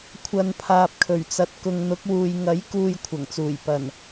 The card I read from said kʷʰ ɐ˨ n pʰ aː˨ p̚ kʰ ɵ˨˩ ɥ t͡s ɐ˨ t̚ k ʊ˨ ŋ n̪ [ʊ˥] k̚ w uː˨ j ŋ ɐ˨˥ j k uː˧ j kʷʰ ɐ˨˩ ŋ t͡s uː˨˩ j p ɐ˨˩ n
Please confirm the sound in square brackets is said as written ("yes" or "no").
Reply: no